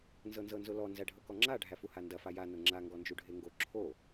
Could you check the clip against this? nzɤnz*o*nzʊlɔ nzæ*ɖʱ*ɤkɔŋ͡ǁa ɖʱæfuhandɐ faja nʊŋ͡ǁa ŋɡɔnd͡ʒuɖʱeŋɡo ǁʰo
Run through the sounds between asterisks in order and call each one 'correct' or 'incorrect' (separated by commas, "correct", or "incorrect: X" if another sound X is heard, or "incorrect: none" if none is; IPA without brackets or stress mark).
incorrect: ɤ, correct